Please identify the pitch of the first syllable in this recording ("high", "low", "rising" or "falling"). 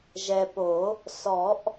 low